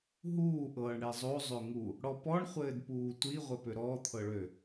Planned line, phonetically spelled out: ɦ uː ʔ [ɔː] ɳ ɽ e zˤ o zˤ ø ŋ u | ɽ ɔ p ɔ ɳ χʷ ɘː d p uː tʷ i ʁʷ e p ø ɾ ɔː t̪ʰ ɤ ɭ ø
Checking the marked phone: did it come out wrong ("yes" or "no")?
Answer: yes